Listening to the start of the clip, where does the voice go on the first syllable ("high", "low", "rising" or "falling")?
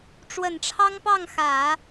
low